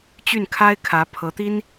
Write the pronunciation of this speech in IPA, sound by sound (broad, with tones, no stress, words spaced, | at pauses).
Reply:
t͡ɕy˥˩n kʰa˥ɪ̯kʰä˧˥ pʰɤ˧˥t̪i˥n